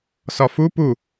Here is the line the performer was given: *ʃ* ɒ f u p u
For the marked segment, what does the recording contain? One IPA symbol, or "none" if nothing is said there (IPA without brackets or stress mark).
s